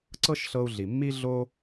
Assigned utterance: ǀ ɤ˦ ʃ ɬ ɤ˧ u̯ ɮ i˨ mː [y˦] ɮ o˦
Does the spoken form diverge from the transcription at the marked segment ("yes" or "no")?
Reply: yes